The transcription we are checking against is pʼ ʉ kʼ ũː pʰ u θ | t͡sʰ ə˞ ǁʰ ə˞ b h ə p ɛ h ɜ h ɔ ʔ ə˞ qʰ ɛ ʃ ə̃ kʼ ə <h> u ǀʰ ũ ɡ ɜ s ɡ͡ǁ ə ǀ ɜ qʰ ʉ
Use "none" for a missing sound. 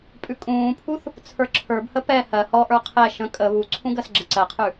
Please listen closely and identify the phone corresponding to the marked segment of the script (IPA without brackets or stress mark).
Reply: β